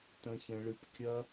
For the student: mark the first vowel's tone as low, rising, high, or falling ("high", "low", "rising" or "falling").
high